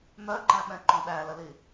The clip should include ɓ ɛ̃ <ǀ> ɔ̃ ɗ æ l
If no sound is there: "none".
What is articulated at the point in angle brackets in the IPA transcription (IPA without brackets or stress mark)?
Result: ǃ